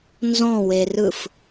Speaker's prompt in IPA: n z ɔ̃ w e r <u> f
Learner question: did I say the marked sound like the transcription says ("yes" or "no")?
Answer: no